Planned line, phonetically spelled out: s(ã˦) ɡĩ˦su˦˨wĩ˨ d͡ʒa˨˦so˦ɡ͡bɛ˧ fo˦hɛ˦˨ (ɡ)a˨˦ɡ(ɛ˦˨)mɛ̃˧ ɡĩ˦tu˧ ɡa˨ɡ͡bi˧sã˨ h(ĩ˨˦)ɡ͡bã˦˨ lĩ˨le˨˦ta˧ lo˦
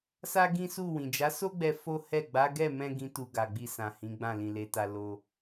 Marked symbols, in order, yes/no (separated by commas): no, no, yes, yes